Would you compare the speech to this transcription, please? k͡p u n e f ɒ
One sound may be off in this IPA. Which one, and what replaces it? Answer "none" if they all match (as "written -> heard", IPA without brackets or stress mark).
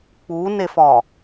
none